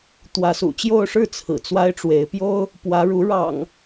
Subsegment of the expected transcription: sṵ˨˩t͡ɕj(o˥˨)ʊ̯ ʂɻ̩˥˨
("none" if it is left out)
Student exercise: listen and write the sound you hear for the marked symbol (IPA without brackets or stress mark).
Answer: o˥˨